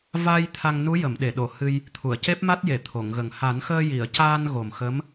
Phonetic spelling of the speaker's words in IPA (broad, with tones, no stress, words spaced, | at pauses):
va˧j t̪ʰa˧ŋnu˧˥ jə˨˩˨mɗe˨˩˨ɗo˨˩˨ hɨ˧j | t̪ʰu˨˩˨ə̯ce˦˥p̚ma˦˥t̚je˨˩˨ t̪ʰo˨˩˨ŋɣə˨˩ŋ ha˨˩˦nxəː˧ji˨˩˨ə̯ caː˧n ɣo˨˩mxə˧˥m